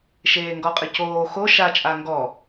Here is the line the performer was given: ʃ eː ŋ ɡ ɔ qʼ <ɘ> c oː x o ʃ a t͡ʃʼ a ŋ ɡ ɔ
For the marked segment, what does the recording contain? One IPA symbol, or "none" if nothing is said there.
ɘ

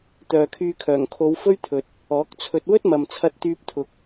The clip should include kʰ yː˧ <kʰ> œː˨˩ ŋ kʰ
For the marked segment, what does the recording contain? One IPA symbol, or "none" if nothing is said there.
kʰ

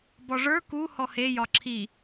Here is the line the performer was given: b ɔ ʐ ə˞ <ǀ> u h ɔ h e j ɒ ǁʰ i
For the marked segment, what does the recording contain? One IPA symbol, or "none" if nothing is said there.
k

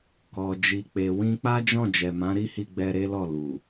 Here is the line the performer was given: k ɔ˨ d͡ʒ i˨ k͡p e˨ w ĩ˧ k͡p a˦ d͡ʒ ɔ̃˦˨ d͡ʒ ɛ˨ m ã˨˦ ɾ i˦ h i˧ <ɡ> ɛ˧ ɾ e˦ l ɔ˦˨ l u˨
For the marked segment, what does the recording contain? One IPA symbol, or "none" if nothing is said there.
ɡ͡b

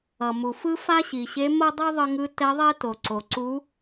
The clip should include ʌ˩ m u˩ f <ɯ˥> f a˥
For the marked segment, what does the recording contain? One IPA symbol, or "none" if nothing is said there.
ɯ˥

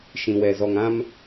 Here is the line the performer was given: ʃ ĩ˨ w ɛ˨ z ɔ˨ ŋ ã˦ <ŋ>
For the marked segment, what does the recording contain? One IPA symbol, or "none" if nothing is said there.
m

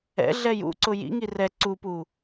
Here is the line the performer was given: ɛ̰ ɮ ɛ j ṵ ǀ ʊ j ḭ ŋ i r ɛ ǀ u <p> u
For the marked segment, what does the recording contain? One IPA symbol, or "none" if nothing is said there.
p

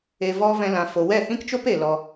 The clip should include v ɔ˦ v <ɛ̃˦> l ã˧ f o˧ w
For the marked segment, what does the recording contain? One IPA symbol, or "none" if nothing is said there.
ɛ̃˦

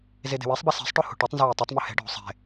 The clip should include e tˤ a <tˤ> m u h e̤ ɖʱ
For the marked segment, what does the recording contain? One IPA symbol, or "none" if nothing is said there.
tˤ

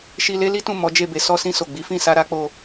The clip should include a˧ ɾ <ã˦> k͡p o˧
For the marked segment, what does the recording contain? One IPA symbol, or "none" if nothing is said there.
a˦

